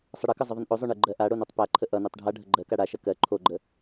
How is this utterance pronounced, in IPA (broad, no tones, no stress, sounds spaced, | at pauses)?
sˤ ə ɽ ʌ k ʌ zˤ ə ðˤ ə n ʔ o zˤ o ɳ e ɡ͡ǃ ɜ ʔ a ɽ o n ʌ tˤ p a ǃʰ ə ʔ ʌ n ɛ tˤ ɖʱ a ɖʱ ə ɡ͡ǃ ɜ k a ɽ a ʃ ɐ k ɜ ǃʰ o ɡ͡ǃ ə